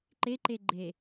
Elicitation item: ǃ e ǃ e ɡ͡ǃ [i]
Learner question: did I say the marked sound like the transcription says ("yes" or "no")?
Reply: no